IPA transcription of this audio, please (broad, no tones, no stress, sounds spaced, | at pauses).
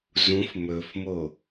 z ũ f m ɵ f m o